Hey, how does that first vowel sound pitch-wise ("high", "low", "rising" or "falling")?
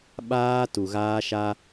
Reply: high